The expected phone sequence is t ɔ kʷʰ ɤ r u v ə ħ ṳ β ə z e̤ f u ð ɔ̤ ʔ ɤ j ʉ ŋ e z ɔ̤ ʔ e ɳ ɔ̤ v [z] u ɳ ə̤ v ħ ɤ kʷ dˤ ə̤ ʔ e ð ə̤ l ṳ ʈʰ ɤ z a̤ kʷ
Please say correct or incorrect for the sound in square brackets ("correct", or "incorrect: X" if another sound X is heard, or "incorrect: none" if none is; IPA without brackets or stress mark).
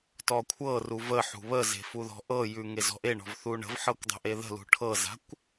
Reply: incorrect: θ